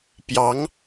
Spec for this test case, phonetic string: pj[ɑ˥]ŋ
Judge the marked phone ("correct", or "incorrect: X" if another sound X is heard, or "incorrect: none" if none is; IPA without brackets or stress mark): incorrect: ɑ˧˥